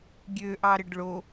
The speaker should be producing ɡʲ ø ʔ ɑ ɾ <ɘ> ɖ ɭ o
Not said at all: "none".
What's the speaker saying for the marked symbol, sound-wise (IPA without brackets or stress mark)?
ɘ